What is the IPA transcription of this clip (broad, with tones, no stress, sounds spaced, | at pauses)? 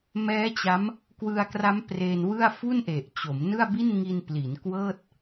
m ɛː˦˥ t͡ɕ a˦˥ m | k w ɯ˧ a̯ k r a˦˥ m p r e˧ n w ɯ˥˩ a̯ f u˥˩ n ʔ e˨˩ ʔ t͡ɕ o˩˦ m n ɯ˥˩ a̯ b i˥˩ n ŋ i˧ n p l i˩˦ n k w ɤː˥˩ t̚